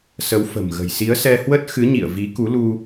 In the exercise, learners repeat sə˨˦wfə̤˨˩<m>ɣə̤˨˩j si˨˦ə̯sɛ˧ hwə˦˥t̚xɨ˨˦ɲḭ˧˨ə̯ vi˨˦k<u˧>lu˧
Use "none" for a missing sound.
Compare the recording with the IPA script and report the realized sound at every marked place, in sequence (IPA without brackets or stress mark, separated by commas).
m, u˨˦